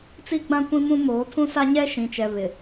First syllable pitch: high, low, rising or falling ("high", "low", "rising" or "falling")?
high